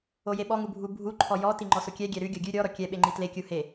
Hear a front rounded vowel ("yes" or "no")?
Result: no